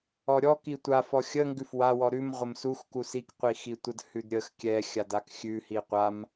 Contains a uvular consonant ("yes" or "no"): yes